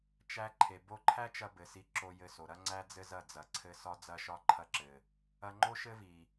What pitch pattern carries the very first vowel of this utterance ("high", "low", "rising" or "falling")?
high